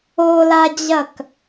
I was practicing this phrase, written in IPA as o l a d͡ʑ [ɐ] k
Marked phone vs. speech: correct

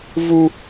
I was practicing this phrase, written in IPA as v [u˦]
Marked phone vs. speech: correct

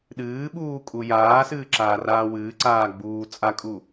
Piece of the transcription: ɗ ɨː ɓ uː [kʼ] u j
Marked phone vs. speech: correct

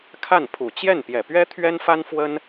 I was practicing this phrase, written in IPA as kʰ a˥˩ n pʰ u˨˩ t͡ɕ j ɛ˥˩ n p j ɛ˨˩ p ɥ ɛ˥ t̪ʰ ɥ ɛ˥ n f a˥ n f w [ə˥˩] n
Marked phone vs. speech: incorrect: ə˥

